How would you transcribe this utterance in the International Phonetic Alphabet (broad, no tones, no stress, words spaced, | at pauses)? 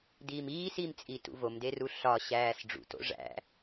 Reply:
diːmiːs imt͡sʼitṵ vomderu ɬɒɕæːs ɖ͡ʐṵto̰ ʐæ̰